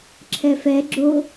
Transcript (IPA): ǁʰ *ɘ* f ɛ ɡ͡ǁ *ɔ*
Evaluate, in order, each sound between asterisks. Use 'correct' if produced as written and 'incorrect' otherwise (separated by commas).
incorrect, incorrect